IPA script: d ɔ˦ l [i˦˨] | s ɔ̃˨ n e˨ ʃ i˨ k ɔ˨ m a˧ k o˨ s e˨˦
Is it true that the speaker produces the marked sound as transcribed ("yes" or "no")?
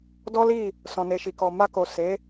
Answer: yes